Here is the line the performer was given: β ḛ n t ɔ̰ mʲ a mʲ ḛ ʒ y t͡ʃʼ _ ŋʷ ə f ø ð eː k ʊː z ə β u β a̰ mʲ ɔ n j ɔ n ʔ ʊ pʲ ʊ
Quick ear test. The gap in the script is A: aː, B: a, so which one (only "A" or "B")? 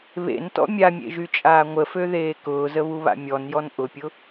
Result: A